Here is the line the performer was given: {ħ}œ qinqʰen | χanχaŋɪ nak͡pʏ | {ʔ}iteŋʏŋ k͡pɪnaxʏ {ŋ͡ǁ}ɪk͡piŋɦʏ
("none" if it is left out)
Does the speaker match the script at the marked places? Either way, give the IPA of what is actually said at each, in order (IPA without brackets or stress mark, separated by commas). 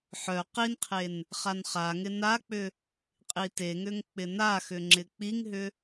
ħ, qʼ, ŋ͡ǁ